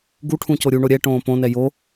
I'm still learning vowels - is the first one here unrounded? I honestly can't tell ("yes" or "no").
no